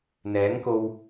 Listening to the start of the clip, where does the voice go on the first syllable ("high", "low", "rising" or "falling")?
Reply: rising